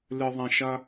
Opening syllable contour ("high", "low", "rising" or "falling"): low